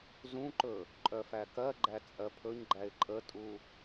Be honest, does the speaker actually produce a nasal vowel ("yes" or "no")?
yes